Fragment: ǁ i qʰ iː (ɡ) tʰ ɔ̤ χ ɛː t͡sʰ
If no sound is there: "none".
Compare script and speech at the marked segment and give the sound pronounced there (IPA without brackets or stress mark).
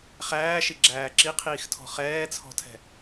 x